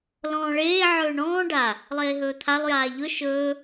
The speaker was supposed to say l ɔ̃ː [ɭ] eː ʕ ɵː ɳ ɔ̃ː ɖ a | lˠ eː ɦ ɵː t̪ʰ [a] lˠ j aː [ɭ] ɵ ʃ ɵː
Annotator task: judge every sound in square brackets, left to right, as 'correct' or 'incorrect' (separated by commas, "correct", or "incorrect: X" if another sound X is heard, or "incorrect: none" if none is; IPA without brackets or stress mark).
correct, correct, incorrect: ʎ